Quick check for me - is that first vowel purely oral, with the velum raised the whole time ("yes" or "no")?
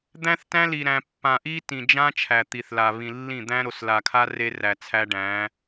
no